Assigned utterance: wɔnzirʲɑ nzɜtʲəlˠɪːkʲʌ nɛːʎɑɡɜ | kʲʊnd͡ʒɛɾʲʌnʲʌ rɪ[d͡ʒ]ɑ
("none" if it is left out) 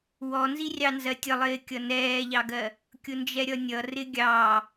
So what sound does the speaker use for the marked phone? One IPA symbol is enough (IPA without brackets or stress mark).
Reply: ɡʲ